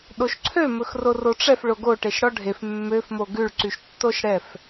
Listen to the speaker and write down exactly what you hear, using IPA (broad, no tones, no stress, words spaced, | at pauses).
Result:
ɗoʃǀʰø mɵxroroʈ͡ʂɛf ɭoɡo ʈeʃɽɔɖʱef mːøf moɡʉɭ ǀyʃtːoʃɽɛf